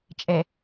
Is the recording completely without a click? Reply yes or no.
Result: yes